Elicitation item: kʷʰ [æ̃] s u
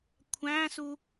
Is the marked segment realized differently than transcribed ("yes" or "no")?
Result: no